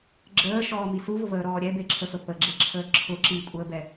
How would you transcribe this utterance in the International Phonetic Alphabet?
ɡ͡ǁəːʃɔːmi suvʊvəːɾɔː ɾʲɛbeǁʰəfə pəɡ͡ǁeǁʰəː ǁʰʊ ǁikʷʼəːbɛ

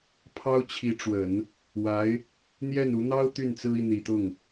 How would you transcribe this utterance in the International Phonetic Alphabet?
pʰɑ˥ʊ̯t͡ɕʰi˧˥ʈ͡ʂwə˨˩˦n | wa˧˥ɪ̯ | n̪jɛ˥˩n u˧˥ n̪ɑ˥ʊ̯ t̪y˥˩nt͡sɹ̩˥i˨ n̪i˨˩t̪ʊ˥˩ŋ

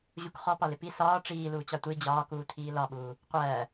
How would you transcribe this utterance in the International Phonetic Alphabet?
ʑukχɔpɒlɪ pi sɒː ʈ͡ʂiː luːt͡ɕɑtʷi d͡ʑɒːkuːtʰiː lɒɓuː | qʷɜː

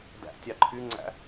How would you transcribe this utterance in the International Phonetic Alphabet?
dæ̰tʲɑ ǃʰyŋ͡ǀæ̰

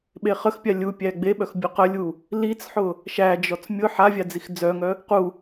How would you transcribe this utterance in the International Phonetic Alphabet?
ɓeχəxpʲa lʲupʲæ ɡ͡beɓœx bʲʊqəlʲu | lit͡sħʊ | ʃæd͡ʒɔt͡s mʲʊ ħavʲa d͡zixd͡zœŋœ | qu

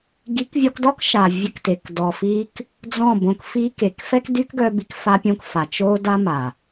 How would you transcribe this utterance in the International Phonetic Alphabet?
ɡi˨˦kvʲɔ˧kdɔ˦k ʃa˨vʲə˧kte˨k dɔ˨fi˧k | d͡zɔ̃˦˨bõ˧kfi˦ke˨˦k fɛ˦kdy˦kɡœ˧bi˧k fa˧pʲõ˧k fa˨t͡ʃo˦ da˦ma˨

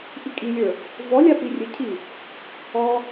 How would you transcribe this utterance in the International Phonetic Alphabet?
ʔikʼilʲə˞ | vɔlʲa pirʲɘcʰi | ɔ

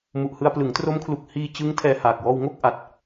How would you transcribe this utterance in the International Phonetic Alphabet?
mu˨˩ʔhɯ˧a̯ plɯ˩˦ŋtro˦˥mkʰlu˨˩k̚ hiː˧t͡ɕɯ˦˥ŋ tʰɛː˧haː˨˩k̚ wɔː˧w ŋo˥˩k̚ ʔa˨˩t̚

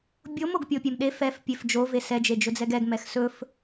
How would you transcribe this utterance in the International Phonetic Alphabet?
bʲom oɡpʲopʲemɗe fɛf pʲefd͡ʒo vesɛ d͡ʒed͡ʒɵd͡zɛɡɛɡ mɛxsɵf

